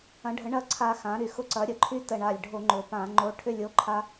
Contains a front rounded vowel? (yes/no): yes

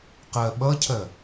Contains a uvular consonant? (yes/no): yes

